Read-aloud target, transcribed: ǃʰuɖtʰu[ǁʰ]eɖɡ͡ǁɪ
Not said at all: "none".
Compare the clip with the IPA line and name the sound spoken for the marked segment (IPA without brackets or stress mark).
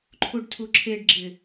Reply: ǁʰ